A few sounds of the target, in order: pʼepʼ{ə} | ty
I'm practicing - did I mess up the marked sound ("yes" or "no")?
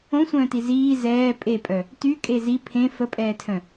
yes